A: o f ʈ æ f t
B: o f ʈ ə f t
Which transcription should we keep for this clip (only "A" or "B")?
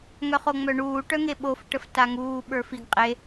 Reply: B